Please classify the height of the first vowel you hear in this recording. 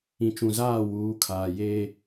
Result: high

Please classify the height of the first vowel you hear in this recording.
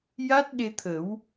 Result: low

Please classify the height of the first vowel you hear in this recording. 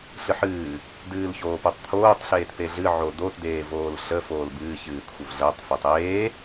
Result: high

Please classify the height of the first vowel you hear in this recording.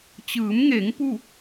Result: high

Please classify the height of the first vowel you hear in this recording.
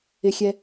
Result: high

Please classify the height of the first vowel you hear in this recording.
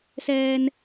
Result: mid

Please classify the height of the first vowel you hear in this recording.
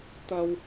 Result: low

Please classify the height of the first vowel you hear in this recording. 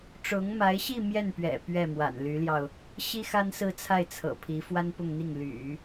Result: high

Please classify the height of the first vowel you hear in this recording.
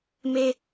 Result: mid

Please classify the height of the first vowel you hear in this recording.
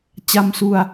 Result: low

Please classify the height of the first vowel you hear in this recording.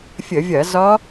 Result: mid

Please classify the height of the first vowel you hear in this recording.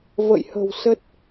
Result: mid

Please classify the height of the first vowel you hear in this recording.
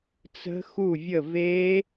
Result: mid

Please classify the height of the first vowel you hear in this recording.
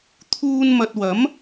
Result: high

